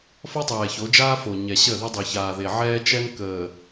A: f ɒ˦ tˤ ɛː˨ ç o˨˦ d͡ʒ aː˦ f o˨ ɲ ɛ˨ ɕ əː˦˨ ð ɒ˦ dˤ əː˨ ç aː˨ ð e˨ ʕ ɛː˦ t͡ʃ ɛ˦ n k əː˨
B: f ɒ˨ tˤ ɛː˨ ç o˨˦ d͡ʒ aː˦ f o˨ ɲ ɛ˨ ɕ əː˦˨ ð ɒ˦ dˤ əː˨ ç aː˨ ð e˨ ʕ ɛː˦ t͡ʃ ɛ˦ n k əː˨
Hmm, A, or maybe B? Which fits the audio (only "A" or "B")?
A